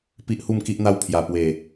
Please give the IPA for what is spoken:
pi˦ʔhu˥˧mki˦ʔn̪a˦w pʰja˨˩pwe˨˩

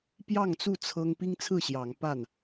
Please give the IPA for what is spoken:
pjɑ˥˨ŋt͡su˥˨ t͡sʰɤ˦ŋ pi˦ŋt͡sʰɹ̩˥˨ɕjɑ˨˦ŋ pa˥˨n

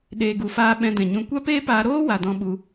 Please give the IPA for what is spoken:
ɗeː˨ɡu˨faː˧ ɓɛ̃˧dɛ̃˨ɲũ˧ kʷa˦peː˦paː˧ ɾoː˦ wa˨dɔ̃˧ɓu˧

